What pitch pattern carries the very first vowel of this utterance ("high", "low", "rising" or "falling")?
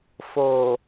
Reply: low